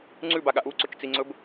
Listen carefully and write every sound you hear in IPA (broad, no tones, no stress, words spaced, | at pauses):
ŋ͡ǀʉbaɠa ʔuǀɵt͡ʃt͡siŋ͡ǀɵb